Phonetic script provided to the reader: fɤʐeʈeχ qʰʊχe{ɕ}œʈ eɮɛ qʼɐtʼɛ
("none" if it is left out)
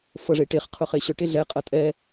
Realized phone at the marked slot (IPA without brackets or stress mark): ɕ